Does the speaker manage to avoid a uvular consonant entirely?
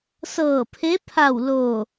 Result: yes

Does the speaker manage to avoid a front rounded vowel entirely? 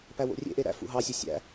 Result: no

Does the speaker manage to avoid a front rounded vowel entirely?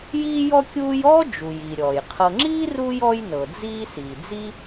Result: yes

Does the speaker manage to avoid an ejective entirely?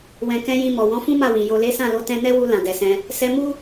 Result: yes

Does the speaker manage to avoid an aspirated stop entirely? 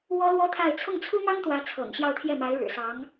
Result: no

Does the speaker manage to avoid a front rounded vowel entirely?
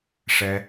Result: yes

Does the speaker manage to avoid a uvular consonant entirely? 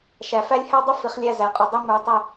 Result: no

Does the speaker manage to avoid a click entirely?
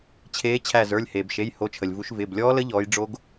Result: yes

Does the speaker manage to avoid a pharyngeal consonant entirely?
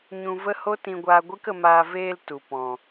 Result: yes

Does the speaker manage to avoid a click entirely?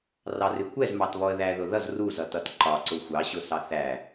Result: no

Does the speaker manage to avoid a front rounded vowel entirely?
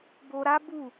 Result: yes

